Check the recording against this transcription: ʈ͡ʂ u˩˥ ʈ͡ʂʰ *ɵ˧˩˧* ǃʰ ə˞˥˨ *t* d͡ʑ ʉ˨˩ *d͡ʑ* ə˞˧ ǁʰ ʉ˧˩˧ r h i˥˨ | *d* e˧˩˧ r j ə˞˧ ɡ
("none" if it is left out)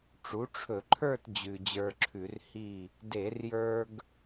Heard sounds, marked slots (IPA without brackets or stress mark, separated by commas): ɵ˧˩˧, t, d͡ʑ, d